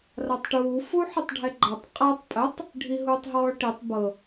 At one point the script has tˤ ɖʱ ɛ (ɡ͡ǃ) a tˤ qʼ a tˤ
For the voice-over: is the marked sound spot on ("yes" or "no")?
yes